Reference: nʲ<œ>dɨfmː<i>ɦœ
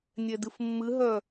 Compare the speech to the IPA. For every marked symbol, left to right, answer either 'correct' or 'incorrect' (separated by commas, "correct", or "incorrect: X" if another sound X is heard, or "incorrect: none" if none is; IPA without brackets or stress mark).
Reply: incorrect: ɛ, incorrect: ɨ